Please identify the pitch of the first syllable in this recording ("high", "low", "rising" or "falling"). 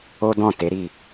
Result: high